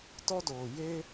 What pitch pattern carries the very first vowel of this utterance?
high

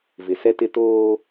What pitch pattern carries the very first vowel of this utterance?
low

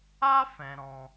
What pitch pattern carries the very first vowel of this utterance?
high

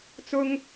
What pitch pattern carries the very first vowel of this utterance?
high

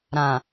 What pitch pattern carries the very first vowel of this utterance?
low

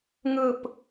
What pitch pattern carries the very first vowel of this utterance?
falling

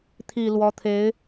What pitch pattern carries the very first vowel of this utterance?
low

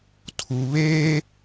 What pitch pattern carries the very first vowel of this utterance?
low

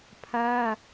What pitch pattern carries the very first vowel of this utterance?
high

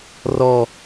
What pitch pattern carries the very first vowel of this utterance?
low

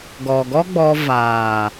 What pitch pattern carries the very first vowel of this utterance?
low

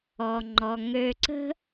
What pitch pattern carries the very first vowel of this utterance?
low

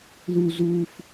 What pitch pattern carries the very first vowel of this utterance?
high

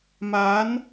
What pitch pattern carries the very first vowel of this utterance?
rising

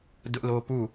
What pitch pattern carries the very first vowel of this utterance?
high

